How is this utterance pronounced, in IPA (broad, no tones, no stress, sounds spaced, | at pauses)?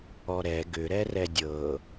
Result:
ɔ ɾ ɛ ɡ ʏ ɾ ɛ r ɛ dʲ ɤ